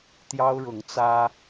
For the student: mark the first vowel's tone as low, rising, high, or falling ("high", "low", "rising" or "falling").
high